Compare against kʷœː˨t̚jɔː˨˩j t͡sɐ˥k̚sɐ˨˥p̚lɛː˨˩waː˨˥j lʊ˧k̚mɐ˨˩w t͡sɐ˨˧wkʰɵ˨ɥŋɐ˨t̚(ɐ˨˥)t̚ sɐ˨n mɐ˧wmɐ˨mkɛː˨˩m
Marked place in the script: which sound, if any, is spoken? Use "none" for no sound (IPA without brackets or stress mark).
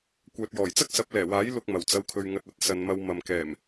ɐ˨˥